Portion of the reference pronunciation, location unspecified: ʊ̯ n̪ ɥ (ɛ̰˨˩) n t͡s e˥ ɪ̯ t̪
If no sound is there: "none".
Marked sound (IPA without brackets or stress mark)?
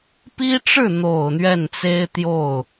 ɛ˥˩